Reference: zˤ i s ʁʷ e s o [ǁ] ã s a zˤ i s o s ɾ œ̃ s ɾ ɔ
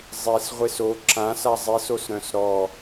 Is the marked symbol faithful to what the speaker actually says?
yes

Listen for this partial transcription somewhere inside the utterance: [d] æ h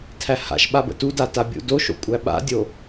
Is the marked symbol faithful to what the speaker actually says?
no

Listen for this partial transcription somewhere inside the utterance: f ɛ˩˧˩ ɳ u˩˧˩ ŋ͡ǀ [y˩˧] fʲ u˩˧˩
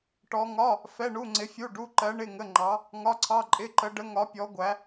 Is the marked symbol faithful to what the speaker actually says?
no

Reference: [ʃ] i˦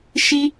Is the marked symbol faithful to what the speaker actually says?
yes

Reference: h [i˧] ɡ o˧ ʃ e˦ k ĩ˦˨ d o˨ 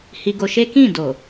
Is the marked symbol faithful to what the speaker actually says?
yes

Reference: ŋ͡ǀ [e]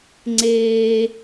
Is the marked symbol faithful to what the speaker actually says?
yes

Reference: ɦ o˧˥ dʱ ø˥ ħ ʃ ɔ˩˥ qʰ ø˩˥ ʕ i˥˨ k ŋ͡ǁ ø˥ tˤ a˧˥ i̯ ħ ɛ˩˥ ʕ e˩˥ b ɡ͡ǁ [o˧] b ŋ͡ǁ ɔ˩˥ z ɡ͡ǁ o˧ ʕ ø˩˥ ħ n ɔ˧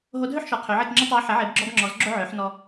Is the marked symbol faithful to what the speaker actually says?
no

